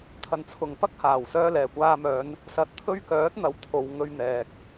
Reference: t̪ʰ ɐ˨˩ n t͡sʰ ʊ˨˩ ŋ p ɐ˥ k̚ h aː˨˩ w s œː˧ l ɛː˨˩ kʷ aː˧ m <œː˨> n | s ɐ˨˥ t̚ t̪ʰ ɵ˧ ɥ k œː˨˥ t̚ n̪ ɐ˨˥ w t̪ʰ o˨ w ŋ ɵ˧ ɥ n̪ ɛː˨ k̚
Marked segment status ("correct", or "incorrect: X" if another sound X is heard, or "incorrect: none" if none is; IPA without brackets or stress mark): incorrect: œː˨˧